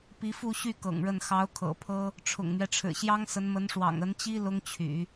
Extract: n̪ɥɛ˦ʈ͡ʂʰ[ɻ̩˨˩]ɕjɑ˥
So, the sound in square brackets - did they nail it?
yes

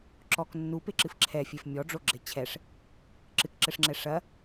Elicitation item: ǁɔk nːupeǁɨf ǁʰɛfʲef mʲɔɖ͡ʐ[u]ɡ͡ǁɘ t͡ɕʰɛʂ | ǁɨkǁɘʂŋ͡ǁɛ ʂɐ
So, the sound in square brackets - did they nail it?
no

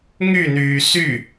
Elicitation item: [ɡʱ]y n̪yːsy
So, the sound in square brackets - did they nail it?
no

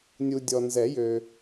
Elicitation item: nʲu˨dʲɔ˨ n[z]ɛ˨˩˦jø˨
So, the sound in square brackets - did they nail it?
yes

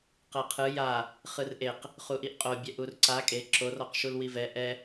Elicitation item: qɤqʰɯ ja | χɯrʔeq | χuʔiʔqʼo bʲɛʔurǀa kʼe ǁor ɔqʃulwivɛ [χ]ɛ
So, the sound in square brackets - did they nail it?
no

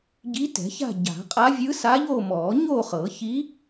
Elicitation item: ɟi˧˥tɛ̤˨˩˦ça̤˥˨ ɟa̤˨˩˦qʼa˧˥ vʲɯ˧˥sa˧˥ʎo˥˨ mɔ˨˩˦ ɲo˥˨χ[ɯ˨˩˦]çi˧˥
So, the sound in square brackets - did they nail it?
no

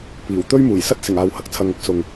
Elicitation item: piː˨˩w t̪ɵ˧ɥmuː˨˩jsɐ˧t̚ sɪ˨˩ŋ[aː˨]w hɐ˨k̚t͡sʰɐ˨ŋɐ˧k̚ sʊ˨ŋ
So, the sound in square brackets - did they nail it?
yes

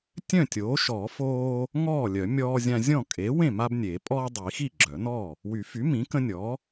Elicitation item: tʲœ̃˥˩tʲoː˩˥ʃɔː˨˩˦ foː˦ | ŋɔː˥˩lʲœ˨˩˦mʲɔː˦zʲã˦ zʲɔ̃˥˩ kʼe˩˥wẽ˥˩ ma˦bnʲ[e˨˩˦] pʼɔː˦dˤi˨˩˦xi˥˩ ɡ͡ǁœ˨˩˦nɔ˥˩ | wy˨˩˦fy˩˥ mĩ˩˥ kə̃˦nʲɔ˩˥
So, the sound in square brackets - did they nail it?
yes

